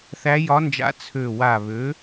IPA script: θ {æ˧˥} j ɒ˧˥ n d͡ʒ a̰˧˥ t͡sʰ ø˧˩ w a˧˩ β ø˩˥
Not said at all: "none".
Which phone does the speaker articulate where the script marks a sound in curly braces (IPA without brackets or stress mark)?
æ˧˥